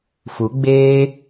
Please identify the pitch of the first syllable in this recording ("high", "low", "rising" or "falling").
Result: rising